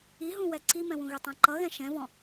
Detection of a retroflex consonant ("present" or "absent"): absent